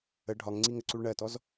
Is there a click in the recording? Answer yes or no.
yes